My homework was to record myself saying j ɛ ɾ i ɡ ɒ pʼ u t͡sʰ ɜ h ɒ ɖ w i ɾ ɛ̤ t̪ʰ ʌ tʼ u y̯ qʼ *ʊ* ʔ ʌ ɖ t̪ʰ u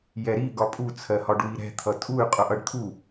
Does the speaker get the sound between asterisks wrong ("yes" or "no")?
no